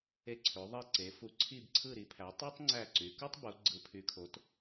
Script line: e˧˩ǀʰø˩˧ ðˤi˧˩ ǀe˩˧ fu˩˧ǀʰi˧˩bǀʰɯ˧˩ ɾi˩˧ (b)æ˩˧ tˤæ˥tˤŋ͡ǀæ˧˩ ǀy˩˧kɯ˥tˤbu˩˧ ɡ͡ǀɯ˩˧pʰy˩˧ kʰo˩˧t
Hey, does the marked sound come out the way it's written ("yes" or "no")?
no